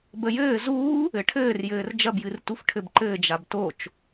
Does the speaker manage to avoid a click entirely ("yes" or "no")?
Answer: no